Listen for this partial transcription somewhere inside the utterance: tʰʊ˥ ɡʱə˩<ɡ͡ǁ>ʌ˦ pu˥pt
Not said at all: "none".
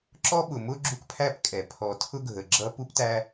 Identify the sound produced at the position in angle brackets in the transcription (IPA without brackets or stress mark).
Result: ɡ͡ǁ